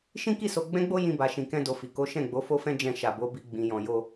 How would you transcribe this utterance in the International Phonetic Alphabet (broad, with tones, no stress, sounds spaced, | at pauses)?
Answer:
ʃ ĩ˦ k i˦˨ s o˧ ɡ͡b ɛ̃˦ ɡ͡b o˦ j ĩ˦ b a˧ ʃ ĩ˧ k ɛ̃˦ d o˧ f i˨ k o˨˦ ʃ ɛ̃˦˨ ɡ͡b o˨˦ f o˦ f ɛ̃˦ d͡ʒ ɛ̃˧ ʃ a˨ b o˨˦ b i˧ ɡ͡b ĩ˧ j ɔ̃˧ j o˦